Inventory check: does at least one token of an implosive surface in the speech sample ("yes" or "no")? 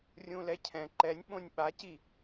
yes